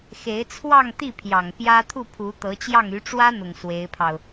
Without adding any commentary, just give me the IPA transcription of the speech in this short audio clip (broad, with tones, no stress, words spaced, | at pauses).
xe˧˥ɪ̯t͡sʰwɑ˥˧ŋt̪i˥˩pʰjɑ˨˩ŋ pjä˥ t̪ʰu˥˩pʰu˧˥t̪ɤ˧˥t͡ɕjɑ˥˩ŋ y˧˥ʈ͡ʂwä˥n̪ʊ˨˩ŋ swe˧˥ɪ̯pʰɑ˧ʊ̯